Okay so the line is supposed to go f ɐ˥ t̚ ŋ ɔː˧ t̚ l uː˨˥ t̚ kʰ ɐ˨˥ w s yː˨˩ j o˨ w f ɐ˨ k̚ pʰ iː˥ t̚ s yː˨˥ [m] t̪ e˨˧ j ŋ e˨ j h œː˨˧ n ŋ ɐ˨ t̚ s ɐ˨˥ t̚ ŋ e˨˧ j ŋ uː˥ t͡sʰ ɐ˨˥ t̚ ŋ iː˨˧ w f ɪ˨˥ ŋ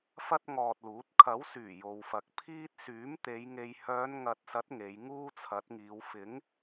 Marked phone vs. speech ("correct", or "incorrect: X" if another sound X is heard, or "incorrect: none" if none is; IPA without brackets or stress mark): correct